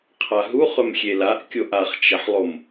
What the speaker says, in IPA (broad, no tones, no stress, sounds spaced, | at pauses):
qʰ a ɦ u χ ɵ m xʲ e l a ʔ kʲ o ʔ a χ t͡ʃ ɐ ħ lˠ o m